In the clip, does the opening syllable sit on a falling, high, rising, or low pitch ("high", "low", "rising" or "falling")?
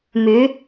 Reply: rising